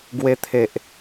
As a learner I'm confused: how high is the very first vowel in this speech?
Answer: mid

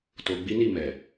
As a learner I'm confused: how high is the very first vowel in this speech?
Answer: mid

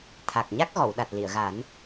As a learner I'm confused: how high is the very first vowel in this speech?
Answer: low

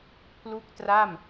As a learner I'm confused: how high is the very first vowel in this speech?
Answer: high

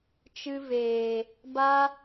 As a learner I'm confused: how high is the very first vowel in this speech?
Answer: high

